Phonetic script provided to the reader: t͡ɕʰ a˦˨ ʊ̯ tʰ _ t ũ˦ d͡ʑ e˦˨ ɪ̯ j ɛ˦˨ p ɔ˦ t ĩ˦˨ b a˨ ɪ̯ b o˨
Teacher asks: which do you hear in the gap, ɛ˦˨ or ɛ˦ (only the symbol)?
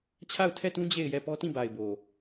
ɛ˦˨